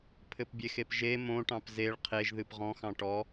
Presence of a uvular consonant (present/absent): present